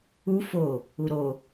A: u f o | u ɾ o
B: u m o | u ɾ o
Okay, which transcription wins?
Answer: A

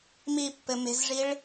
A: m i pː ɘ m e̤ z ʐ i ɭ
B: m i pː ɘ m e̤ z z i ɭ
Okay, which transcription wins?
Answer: A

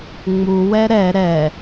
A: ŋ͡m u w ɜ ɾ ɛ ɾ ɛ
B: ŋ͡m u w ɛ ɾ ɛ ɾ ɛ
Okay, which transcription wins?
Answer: B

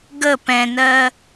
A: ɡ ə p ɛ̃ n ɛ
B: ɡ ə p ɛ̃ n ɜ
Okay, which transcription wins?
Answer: B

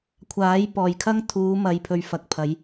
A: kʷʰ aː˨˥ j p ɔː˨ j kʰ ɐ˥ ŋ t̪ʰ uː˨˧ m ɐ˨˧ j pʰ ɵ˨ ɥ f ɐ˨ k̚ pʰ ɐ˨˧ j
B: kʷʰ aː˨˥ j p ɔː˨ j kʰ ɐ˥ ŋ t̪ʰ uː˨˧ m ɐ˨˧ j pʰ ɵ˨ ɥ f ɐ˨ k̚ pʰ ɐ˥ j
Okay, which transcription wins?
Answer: A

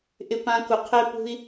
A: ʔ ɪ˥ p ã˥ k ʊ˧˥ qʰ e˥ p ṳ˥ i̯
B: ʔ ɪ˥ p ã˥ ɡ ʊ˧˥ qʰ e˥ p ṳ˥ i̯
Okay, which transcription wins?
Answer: A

